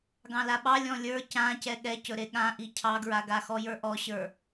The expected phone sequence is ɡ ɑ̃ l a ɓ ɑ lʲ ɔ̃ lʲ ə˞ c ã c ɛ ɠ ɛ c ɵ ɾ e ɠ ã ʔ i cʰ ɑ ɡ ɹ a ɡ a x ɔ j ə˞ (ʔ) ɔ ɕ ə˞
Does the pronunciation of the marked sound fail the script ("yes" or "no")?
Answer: no